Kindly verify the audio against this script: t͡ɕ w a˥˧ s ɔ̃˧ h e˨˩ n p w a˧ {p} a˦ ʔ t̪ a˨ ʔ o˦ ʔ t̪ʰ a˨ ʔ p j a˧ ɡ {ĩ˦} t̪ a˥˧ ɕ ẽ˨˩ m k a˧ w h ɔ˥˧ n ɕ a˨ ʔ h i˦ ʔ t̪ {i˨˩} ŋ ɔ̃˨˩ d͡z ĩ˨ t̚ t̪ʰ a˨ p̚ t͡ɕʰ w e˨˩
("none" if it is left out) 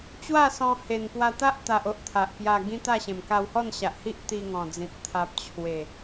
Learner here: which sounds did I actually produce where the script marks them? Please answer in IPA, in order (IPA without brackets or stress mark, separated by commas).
t̪, ĩ˦, i˧